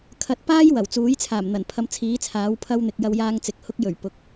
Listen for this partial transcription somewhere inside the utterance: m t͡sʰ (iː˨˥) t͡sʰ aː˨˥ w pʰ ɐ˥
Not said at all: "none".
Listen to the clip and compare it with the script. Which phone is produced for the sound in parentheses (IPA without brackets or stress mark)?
iː˨˥